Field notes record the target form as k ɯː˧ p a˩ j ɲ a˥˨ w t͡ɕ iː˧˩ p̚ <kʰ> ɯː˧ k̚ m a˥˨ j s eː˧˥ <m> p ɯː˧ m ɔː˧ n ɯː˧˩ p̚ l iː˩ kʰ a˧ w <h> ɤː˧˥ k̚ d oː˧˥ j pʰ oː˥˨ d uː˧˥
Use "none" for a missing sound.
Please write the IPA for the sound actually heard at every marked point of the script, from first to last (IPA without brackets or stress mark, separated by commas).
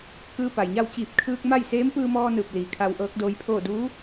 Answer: kʰ, m, ʔ